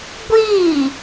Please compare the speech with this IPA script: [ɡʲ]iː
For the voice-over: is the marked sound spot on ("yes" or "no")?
no